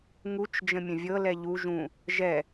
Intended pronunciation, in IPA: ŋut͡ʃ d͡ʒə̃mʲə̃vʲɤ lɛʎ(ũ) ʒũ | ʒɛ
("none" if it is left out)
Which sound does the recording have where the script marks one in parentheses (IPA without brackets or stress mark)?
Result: u